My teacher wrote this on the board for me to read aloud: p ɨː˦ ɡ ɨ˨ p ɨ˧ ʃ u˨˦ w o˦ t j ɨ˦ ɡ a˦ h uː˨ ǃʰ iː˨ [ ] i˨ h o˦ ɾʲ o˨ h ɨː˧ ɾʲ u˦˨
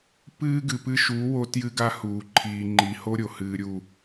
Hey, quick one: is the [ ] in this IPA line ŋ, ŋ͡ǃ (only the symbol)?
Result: ŋ͡ǃ